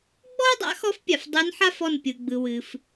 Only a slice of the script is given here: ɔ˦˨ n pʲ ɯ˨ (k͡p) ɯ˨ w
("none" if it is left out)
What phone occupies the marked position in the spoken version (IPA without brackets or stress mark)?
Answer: ɡ͡b